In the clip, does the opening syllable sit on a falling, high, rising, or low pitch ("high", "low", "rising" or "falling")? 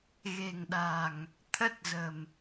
low